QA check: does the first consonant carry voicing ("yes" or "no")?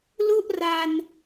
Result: yes